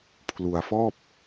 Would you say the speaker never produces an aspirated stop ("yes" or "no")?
no